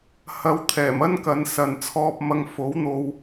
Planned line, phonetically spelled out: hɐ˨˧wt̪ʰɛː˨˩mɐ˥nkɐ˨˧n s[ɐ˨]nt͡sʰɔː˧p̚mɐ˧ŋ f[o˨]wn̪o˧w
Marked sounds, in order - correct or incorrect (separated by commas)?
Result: correct, incorrect